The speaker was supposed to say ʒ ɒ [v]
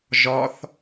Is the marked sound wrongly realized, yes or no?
yes